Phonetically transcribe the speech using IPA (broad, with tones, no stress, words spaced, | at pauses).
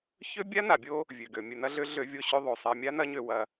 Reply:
çø˦ bʲa˦na˨bʲo˦ | vʲø˨ɡø˨ mʲɘ˨nɐ˦ɮø˦ ɮø˦ vʲo˦ɕø˦ðˤo˨ sˤɛ˨mʲa˦nɐ˦ ɲø˦wɐ˦